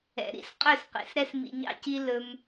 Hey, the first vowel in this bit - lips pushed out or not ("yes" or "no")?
no